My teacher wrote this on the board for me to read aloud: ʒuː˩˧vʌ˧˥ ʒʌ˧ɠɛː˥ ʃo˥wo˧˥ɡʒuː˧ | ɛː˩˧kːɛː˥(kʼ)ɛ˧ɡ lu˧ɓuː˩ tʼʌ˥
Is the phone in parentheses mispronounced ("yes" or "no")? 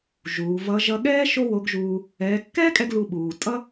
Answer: no